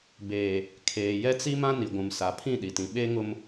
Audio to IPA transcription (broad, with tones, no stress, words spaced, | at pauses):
beː˨ | kʰeː˨ jɛ˦t͡si˦ mã˦ni˨ɡʷũ˨m sa˨pʰĩ˦˨ɗi˨tĩ˨ ɓe˦ŋʊ˦m